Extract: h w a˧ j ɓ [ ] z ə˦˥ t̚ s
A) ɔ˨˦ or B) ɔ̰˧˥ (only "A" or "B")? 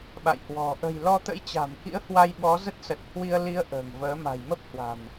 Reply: A